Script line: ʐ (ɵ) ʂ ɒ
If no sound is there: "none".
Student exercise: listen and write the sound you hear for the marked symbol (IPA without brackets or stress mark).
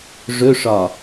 ɵ